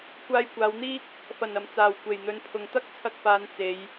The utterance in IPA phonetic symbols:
kʷaː˧jkʷaː˨˧wn̪iː˥k̚ | fɐ˨˩nɐ˨˩mt͡saː˨˩w kʷe˨˩jn̪ɵ˨˧n pʰʊ˨ŋ t̪ɐ˥k̚t͡sʰɐ˧k̚faː˨˧n t͡se˨˧j

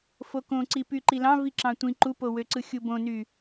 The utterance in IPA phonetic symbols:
fokõǀi pyǃilɑ̃ viǁɑ̃tʷĩ ǃupowøǀɯ xʲubõny

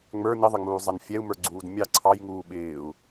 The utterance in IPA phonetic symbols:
ŋ͡mə˞ nɪðˤɪŋ͡muːzˤɛn fʲɛu̯mə˞ɡ͡ǀuːd mʲɑ ǀʰɑjŋuː ɓɪːu̯

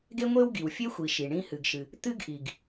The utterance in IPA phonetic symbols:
ɡe˥ŋʷe˥w ɡi˩wfʲe˥xʷi˩ ʃi˩ ɳĩ˦ hɨ˨ɡʃɨ˨ | t̪ɨ˥ɡʔi˩ɡ

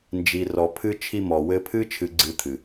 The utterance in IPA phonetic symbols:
nd͡ʒi˨rɔ˨ pʰɨ˧ t͡ʃʰi˧mɔ˨wɘ˧pʰɨ˦ t͡ʃʰɨ˧ɡ͡ǀɨ˧t̪ʰɨ˨

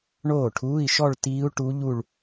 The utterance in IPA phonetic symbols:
ɳoː˥˩ʈʰuː˧˥˧i̯ʃɔ˥˧ɭ tiː˦˥u̯ʈu˦˥ʎu˥˧ɭ

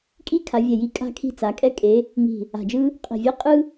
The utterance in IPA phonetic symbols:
kʼi˥ kʰa˨˦vʲɛ˧˩ji˥˨ kʼa̤˥kʰi̤˥˨t͡sa˨˦ kʼɛ˥kʼe˨˦ | ŋi̤˧˩ | a̤˧˩d͡ʒɯ˥ | qʼi̤˧˩vʲɛ˥qʼɯ˥

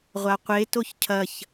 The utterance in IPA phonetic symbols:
ʁʷaqʷe toçcʰɐç

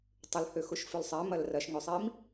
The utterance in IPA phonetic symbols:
tˤʏlhø xʊʃfʏlsˤɛ mɐlrɐʃŋʏsˤim

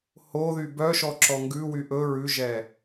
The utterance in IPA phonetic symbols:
hoðy bœʃɔǁɔ ŋɡʉwy ʔɵ ɹʉʒɛ

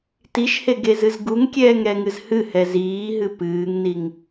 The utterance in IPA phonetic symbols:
tiʃheɡezɨz ɡuŋkʲɛːŋɾɛŋɨz hɨhɛ ziːɦɨ pɨːŋniŋ

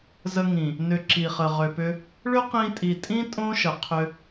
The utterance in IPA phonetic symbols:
zə˧ŋĩ˨ | nʏ˨ ǁi˨χə˨ ʁʏ˨pʏ˧ | ɭʏ˦qĩ˧tʼi˨tʼĩ˦ tʼõ˦ʃə˨qʰʏ˧

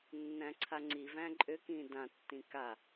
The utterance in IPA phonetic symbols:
nːæ̃ǀʰaŋ͡ǀivæ̃ ǃʼʏkĩ dãtːĩ ka

